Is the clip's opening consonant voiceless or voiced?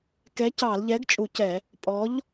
voiceless